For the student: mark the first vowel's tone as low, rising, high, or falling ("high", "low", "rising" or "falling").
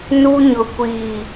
high